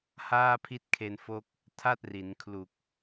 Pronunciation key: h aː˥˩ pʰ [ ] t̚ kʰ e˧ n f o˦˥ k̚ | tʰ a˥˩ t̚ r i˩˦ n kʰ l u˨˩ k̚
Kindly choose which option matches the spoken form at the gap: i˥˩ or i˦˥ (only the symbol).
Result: i˥˩